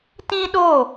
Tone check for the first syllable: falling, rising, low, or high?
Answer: high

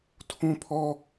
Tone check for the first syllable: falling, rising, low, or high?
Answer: high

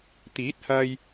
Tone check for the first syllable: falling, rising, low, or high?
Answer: rising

